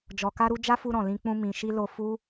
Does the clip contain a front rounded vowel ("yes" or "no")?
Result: no